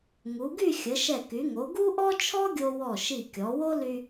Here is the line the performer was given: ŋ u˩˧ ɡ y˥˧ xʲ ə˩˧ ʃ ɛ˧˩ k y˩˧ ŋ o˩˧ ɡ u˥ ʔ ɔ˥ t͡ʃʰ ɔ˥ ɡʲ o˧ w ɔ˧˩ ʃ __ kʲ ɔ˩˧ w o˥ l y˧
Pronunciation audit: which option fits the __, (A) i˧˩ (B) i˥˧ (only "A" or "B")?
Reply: A